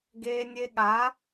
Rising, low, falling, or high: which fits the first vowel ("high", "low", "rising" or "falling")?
high